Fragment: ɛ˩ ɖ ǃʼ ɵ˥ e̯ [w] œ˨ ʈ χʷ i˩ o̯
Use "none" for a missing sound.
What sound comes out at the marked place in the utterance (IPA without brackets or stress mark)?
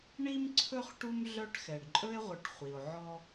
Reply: ʁʷ